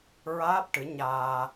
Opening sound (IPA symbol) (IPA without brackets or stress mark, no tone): ɹ